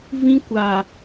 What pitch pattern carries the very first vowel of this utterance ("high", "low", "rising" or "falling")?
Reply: high